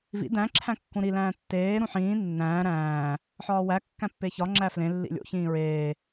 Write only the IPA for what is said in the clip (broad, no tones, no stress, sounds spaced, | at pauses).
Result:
v ḭ d æ̃ ǁʰ æ̃ kː ũ ɾ i l æ̃ː tː eː ɾ ũ ħ ĩː nː æ̃ː ɾ æ̃ː | ħ ɒː w æ kː æ̃ pː e ç ɒ ŋ͡ǁ æ f l ẽ lː ḭ lʲ o̰ ç ĩː ɹ eː